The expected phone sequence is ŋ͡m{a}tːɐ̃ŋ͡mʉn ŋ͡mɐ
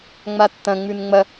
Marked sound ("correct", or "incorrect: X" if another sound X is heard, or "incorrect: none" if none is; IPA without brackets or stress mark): correct